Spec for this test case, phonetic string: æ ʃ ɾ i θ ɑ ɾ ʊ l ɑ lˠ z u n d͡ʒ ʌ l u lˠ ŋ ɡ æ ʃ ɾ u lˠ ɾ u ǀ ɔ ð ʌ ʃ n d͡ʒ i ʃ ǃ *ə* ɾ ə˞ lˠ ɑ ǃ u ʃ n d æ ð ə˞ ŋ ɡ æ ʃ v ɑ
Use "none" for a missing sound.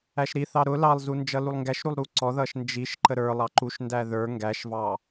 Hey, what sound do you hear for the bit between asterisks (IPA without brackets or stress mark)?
ə